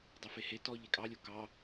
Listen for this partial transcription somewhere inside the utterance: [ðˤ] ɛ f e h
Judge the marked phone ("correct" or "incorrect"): incorrect